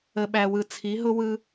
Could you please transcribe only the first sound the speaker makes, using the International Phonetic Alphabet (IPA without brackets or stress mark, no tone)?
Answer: ə